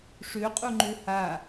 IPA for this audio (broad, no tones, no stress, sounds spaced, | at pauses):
ʂ ø qʼ u ŋ͡ǃ ø h a